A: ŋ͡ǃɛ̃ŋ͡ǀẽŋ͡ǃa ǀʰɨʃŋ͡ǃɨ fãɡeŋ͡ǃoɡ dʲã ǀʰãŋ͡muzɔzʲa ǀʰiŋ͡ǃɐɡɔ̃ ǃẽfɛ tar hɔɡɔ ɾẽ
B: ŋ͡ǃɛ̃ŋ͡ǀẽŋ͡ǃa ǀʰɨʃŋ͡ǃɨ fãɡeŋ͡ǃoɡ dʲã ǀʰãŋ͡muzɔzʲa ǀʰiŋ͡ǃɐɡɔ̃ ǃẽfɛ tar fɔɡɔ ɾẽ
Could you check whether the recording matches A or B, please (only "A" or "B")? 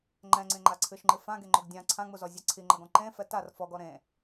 B